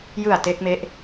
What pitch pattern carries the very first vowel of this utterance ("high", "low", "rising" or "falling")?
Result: low